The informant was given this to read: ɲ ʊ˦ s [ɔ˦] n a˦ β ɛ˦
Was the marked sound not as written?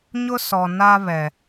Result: yes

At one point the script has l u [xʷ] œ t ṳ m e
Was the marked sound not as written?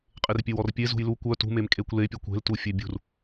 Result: yes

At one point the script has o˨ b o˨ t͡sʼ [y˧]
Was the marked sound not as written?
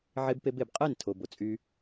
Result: no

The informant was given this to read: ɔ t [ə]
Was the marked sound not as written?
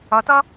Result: yes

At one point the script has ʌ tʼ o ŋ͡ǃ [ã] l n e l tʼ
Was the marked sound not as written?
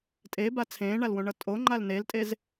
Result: yes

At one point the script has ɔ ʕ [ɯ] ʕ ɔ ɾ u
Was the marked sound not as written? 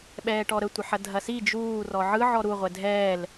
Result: no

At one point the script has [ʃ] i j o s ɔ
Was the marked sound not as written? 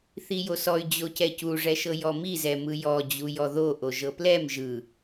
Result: yes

